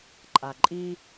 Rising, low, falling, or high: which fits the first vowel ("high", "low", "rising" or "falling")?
low